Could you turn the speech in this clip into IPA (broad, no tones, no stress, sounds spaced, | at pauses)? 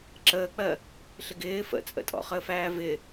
ǁ əː k͡p ɜ | ɬ ɪ ɡ ɪː f ə̰ t͡sʼ ə̰ tʼ ɔ̰ χ əː f æː v ɪ